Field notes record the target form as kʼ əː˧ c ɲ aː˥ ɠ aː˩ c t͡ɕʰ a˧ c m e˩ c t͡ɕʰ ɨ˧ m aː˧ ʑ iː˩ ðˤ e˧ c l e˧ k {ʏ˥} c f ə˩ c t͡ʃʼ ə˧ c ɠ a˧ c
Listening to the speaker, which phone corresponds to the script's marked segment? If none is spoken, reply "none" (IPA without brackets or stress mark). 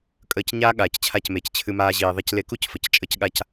u˥